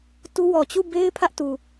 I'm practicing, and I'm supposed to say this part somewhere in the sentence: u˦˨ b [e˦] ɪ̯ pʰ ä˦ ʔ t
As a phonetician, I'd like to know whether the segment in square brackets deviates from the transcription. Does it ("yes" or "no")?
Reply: no